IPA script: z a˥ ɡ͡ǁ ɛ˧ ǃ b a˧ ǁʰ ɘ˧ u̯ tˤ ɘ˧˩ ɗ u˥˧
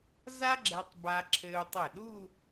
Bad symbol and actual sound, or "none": ǃ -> tˤ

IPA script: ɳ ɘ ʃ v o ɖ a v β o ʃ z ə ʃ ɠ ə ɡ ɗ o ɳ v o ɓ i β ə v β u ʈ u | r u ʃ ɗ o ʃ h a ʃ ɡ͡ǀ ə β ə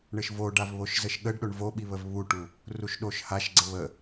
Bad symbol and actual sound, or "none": ɡ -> ɖ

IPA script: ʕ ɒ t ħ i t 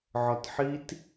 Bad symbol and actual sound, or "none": none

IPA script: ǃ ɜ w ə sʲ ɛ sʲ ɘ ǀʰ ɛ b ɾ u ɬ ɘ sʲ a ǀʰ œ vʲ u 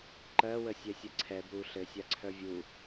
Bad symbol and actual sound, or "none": none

